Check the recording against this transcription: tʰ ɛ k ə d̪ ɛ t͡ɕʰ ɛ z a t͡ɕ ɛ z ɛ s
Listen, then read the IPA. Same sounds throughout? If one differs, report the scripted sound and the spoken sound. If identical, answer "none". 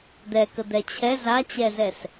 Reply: tʰ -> d̪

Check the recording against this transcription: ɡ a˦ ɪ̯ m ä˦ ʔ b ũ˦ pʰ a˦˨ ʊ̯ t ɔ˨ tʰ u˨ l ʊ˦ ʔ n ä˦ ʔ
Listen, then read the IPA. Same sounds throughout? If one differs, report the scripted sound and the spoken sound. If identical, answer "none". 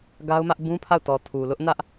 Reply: ɪ̯ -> ʊ̯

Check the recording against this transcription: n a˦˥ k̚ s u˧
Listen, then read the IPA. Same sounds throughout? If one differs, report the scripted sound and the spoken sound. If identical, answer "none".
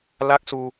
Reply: n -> l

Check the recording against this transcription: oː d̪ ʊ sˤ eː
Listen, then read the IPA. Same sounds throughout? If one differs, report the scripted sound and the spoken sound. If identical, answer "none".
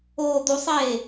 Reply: ʊ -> u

